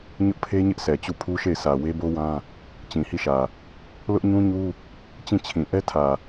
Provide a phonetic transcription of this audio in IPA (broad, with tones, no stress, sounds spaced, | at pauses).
ɲ ʊ˦ ʔ pʰ e˦ ɲ ɪ˦ ʔ s ɛ˨ t͡ɕ u˦˨ pʰ u˦ ʃ e˦˨ ɪ̯ sʰ ä˨ w e˦ b o˦ w ã˦ | t͡ɕ ĩ˨ h i˦˨ ʃ ä˨ | l ʊ˦ ʔ ɲ ũ˦ ɲ u˦ | t͡ɕ ĩ˦˨ t͡ɕʰ ĩ˨ ʔ ɛ˦ tʰ ä˨